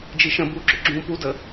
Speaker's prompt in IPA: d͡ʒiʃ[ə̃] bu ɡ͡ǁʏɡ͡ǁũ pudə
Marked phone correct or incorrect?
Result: correct